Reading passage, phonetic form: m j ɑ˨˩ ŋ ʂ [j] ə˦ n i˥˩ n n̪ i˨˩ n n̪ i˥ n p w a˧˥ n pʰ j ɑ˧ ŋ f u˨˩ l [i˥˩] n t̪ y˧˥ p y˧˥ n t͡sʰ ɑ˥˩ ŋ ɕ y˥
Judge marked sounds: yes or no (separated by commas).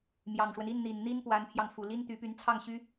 no, no